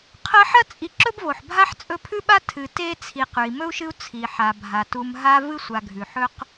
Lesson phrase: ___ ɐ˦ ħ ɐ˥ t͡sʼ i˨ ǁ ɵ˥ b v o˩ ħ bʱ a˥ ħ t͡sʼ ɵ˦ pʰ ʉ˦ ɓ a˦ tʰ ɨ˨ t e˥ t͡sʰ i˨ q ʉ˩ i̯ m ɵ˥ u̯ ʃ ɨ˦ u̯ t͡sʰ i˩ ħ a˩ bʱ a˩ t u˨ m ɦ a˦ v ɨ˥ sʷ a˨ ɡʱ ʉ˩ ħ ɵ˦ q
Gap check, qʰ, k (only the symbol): qʰ